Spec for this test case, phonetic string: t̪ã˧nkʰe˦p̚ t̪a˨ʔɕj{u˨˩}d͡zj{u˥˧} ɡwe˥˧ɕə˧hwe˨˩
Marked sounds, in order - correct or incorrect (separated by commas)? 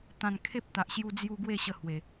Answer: incorrect, incorrect